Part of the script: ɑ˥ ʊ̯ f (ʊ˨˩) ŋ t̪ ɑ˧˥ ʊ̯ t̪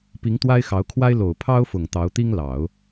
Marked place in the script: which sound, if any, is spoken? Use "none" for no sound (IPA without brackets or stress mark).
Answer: ʊ˨˩